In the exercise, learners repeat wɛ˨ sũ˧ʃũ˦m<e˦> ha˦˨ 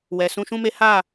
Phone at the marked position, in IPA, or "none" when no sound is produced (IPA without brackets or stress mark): e˦